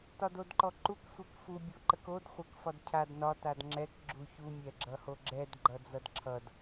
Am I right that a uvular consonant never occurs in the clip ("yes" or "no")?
no